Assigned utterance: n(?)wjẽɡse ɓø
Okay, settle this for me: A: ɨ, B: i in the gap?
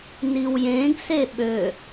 B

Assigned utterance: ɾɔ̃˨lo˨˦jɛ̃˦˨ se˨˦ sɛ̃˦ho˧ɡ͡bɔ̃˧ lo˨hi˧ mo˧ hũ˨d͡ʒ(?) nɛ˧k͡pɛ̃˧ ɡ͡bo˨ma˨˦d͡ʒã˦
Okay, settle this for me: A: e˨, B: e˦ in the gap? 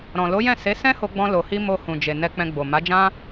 A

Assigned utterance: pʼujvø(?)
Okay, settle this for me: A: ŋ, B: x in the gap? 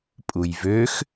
B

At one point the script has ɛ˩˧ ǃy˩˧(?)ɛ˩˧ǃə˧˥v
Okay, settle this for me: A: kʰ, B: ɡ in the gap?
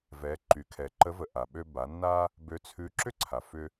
A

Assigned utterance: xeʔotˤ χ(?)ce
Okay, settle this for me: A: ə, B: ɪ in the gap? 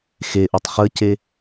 A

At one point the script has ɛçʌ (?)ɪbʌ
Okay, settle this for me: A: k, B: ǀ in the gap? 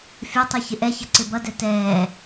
B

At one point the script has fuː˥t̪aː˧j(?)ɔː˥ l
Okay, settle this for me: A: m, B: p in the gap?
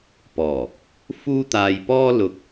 B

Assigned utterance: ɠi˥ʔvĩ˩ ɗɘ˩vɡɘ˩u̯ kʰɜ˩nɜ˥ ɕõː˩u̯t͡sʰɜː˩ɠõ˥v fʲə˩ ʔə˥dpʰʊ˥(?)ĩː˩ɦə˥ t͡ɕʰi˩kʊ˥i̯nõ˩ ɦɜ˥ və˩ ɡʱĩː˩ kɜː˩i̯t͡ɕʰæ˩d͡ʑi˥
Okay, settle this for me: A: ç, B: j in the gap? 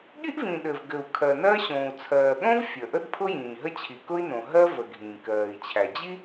B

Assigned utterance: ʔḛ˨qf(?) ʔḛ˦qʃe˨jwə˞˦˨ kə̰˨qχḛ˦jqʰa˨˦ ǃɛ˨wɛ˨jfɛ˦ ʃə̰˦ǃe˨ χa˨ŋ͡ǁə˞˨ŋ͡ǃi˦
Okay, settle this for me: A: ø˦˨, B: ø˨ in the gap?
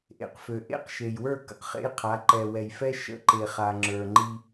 B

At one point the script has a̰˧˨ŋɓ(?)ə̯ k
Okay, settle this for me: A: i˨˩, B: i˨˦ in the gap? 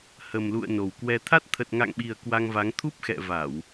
A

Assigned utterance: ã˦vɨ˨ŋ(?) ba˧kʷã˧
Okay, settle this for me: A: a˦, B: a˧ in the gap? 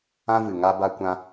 A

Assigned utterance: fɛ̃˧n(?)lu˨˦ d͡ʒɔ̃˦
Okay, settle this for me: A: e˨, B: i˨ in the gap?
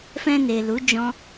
A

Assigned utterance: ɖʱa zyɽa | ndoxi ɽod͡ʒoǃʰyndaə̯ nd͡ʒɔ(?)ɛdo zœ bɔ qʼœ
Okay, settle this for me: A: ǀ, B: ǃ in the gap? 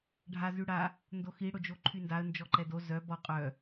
B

